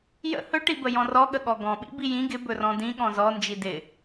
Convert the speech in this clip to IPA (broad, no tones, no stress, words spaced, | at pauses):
jə̰ hɵʈibə jɔ̃rɔɠə ɠɔɡɔ̃ɓḭ bijĩ ɡɪ bɵrɔ̃dĩ ɠɔ̃zɔ nd͡ʒidɪ